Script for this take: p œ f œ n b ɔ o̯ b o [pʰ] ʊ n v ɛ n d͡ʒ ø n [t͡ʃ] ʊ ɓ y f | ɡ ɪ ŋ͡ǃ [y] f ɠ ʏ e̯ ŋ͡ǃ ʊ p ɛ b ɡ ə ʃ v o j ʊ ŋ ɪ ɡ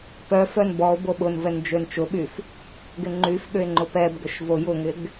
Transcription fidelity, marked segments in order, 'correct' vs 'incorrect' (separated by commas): incorrect, correct, correct